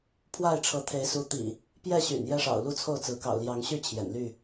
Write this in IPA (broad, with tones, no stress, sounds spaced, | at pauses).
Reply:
pʰ w a˥˨ ɪ̯ ʈ͡ʂʰ ɤ˨˦ t̪ʰ e˨˦ ɪ̯ s u˨˦ t̪ ḭ˨˩ | p j ɛ˥˨ ɕ y̰˨˩ n j ɛ˦ ʂ ɑ̰˨˩ ʊ̯ l u˦ t͡sʰ o˥˨ ʊ̯ t͡s ɹ̩˨˦ k ɑ̰˨˩ ʊ̯ l j ɑ˨˦ ŋ ɕ y˥˨ t͡ɕʰ j ɛ̰˨˩ n l y˥˨